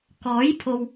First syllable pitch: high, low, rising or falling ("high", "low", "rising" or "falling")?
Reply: rising